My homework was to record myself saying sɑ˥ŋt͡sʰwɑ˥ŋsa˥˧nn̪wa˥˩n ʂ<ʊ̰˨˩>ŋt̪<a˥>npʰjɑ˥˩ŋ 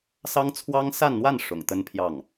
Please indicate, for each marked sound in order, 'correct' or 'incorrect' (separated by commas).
correct, incorrect